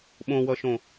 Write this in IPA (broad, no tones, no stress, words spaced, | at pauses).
ɓõwʌʃõ